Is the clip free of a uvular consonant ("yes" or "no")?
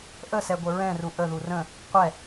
no